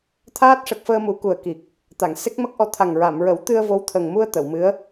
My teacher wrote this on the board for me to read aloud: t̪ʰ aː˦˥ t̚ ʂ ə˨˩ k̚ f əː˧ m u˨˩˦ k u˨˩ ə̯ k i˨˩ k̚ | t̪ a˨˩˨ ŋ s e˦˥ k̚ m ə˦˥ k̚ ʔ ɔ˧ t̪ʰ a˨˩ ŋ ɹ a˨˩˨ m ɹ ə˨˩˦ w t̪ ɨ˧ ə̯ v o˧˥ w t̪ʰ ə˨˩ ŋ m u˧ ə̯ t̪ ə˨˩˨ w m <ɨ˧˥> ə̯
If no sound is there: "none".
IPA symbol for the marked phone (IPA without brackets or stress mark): ɨ˧˥